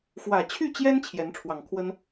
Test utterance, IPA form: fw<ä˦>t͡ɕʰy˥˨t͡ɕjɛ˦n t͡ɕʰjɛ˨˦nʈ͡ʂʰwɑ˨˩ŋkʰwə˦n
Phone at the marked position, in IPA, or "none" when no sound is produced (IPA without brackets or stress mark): ä˨˩